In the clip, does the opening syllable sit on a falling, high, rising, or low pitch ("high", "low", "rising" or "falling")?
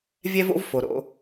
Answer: high